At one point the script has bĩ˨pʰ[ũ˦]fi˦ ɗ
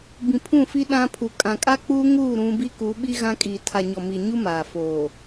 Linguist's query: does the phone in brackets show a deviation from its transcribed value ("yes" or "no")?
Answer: yes